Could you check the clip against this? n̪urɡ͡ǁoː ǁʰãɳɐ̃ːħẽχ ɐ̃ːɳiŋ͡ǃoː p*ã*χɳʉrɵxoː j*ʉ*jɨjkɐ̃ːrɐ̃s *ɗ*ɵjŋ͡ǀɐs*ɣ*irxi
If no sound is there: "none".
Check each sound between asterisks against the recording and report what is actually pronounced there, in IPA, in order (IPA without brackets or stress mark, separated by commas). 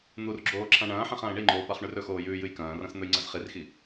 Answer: a, ʉː, n̪, χ